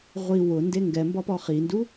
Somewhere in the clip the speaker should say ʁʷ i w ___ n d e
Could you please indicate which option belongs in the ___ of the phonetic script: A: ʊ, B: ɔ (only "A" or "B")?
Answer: A